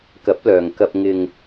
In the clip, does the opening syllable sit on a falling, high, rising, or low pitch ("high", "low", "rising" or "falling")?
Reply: rising